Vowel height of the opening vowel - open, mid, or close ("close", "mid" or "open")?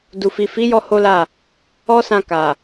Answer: close